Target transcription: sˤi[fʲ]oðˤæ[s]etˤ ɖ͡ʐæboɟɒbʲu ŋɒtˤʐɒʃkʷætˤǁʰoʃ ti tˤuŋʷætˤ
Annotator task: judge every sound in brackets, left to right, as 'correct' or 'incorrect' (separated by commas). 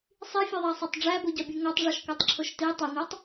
correct, incorrect